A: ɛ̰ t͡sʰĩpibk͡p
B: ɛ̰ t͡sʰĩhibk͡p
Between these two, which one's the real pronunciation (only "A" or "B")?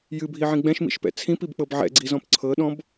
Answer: A